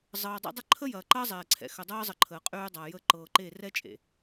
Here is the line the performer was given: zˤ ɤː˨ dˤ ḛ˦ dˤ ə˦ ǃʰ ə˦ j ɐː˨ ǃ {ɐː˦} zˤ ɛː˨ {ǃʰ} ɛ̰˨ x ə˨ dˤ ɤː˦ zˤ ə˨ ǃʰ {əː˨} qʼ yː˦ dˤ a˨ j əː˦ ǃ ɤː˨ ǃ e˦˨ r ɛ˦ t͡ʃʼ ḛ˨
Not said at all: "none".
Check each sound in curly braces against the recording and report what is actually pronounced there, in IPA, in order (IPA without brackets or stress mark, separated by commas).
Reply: ɐː˦, ǀʰ, əː˨